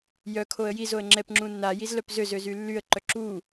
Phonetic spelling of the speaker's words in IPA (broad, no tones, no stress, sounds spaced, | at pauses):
j œ kʰ o ə̯ j i z o ə̯ ŋ͡ǁ ɛ p ŋ͡ǁ ũ nː a j i z l œ p z ø z ø z y lː y ə̯ ǃ œ ǁ u